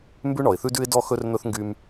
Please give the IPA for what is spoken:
m b ʉ˦ ɳ ɔ˨ ɪ̯ θ ʉ˦ d ʉ˦ ɪ̯ d ɔ˦ x ɵ˦ r n̪ ɵ˦ θ ŋ ɡ y˦ m

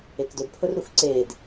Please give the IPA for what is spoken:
e k d ɵ d pʰ ɵ r ɾ u x ǀ eː d

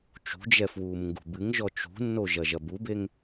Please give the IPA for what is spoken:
t͡ʃ ṳ d͡ʒ ɛ f w uː m ŋ ɡ ṳ b ɨ ŋ ʒ ɔ t͡ʃ ṳ nː o ʒ ɐ ʒ ɐ b u b e ŋ

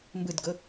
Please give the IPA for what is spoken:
m b ɯ d ɡ ʊ

